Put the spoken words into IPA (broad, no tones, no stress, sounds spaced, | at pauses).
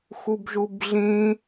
x u b ʒ u b ɮ ĩ